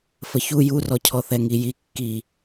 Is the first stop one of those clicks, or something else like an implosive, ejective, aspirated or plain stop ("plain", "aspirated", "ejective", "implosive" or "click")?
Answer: aspirated